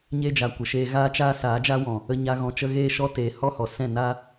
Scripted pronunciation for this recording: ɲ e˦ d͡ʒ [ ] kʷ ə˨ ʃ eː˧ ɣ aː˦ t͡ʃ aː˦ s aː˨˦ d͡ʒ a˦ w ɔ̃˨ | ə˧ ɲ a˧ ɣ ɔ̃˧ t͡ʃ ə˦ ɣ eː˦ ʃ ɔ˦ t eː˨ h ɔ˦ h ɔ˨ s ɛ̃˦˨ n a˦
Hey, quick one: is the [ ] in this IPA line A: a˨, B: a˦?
A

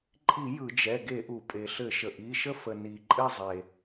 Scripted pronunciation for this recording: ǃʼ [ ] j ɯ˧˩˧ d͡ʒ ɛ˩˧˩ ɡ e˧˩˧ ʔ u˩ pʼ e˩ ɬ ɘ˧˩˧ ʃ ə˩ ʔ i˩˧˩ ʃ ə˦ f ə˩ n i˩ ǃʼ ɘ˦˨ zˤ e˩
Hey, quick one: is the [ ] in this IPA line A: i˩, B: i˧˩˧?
B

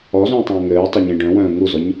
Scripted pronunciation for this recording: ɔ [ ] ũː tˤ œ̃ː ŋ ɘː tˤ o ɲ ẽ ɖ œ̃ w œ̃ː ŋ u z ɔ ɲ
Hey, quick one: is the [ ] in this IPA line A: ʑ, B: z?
B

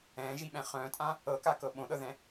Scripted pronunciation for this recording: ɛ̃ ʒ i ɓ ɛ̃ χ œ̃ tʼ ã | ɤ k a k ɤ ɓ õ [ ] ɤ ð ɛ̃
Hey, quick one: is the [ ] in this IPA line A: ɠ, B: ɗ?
B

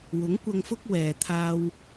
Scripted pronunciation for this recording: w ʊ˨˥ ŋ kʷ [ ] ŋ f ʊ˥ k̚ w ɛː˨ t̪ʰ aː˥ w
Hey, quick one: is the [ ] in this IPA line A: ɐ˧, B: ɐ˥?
A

